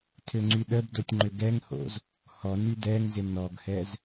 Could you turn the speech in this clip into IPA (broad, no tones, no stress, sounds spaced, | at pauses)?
tʰ ø ŋ͡ǀ y ɗ ə b d o tʲ ŋ͡ǃ ʏ ɡ ɛ ŋ h o̰ z | h ɔ n y d ɛ ŋ z ɪ n ɔ ɡ h ɛ z